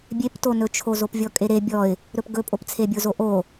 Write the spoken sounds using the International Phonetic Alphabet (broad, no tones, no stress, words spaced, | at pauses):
bʲeptonɵt͡ʃʰo zopvʲɔkʼeɾe bʲɔɪ̯ | ɾɵpɡɵpʼopt͡sʰe bʲozoʔo